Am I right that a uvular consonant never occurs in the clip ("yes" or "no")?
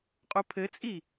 no